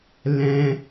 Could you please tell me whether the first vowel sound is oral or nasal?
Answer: nasal